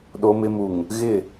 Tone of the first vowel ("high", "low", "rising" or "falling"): low